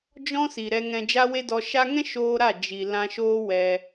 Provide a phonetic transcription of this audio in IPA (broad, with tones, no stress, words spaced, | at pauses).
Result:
d͡ʒɔ̃˧ si˨ɾɛ˧ŋɛ̃˧ d͡ʒa˦we˦dɔ˧ ʃa˧ŋɛ̃˦ ʃoː˦ɾa˦˨ d͡ʒi˨ lã˧ʃoː˦wɛ˧